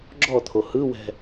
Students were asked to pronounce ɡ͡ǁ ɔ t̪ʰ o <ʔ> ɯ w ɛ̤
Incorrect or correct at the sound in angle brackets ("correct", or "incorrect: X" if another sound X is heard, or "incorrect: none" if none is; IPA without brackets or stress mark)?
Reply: incorrect: h